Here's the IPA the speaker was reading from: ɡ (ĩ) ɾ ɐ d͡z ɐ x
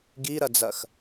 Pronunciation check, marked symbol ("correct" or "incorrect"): incorrect